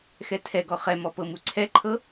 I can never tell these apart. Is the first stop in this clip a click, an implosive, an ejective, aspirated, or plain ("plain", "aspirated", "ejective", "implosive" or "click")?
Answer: aspirated